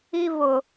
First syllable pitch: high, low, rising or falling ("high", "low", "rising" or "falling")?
high